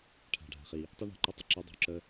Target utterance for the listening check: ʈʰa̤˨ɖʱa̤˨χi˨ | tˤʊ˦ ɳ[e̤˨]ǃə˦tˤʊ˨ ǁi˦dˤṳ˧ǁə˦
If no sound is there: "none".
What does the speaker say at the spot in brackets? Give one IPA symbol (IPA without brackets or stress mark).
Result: ɛ̤˨